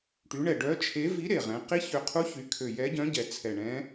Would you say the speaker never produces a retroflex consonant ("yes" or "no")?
no